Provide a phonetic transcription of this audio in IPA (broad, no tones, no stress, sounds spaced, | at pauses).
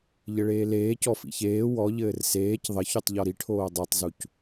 ʎ ɘ ɭ eː l eː c ɔ f ḭ ç eː w ɔ ʎ ɘː r s eː c ðˤ ɘ ç u tˤ ʎ ɔ ɾ i ʈʰ oː dˤ e tˤ z u c